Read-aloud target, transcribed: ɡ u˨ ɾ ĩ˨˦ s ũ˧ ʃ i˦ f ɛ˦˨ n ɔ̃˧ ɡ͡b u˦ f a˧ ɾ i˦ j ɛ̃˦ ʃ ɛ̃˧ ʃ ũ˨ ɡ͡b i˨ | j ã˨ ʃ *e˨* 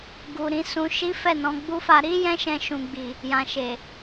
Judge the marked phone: correct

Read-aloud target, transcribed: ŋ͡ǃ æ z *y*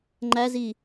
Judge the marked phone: incorrect: i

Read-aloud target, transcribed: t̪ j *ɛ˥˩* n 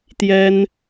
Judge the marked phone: incorrect: ɛ˥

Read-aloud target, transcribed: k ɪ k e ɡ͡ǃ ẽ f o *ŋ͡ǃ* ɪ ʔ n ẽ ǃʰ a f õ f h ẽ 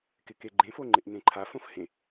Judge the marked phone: correct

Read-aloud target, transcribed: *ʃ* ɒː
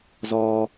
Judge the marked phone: incorrect: z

